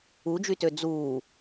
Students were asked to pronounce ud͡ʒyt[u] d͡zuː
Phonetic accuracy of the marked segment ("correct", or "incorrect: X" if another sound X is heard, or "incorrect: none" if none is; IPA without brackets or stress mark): incorrect: ø